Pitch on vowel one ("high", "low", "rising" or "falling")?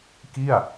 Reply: falling